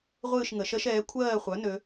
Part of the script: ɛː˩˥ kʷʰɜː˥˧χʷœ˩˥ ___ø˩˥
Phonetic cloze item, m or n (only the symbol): n